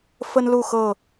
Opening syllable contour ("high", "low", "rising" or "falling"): high